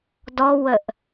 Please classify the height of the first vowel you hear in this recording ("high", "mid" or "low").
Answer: mid